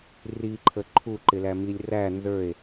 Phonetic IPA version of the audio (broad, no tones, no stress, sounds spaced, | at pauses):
r i ǃʰ ə ǃʰ u ǃ ɪ l æ m i lʲ r æ n z ə˞ e̯